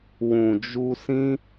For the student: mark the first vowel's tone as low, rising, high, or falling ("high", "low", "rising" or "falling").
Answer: low